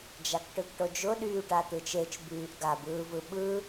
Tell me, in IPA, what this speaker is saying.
d͡ʒ a k ʈ ɯ ɡ ʈ o d͡ʒ ʊ ɗ yː ʈ a t̪ ɯ t͡ʃ e t͡ʃ b yː ʔ ɡ a b ɯː v ɯ ɓ ɯ

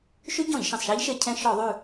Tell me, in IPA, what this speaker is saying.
ʃ y˦˥ ɟ ɔ̃˧˩˧ ʎ ʃ ẽ˩ sˤ ʃ æ˦˥ ʎ ʃ e˧˩˧ cʰ ɛ̃˧ ʃ ɔ˧˩˧ ðˤ ʉ˧˩

